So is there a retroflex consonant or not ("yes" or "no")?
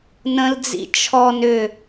no